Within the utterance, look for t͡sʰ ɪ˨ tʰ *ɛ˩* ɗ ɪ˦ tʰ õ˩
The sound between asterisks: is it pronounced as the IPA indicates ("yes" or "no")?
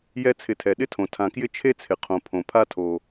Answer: yes